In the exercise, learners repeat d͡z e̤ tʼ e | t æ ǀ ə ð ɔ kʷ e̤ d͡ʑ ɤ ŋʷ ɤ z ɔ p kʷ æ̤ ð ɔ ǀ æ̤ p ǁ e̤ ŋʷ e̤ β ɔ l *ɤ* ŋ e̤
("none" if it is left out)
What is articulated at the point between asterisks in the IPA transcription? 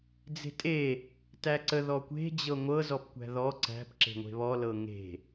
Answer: ɤ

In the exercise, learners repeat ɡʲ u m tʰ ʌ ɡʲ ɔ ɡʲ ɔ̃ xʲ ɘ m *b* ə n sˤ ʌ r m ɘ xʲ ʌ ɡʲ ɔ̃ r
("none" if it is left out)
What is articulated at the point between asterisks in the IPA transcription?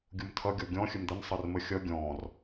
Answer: d̪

